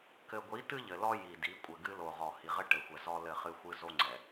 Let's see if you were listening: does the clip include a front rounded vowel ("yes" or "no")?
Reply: no